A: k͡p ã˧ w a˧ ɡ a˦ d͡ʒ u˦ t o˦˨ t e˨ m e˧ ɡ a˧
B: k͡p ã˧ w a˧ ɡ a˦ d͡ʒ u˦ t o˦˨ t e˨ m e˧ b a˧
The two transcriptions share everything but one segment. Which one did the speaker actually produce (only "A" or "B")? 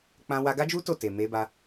B